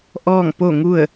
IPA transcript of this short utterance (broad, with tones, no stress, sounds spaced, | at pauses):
ʔ ɔː˥˨ ŋ p o˥˨ ŋ u˥˨ ə̯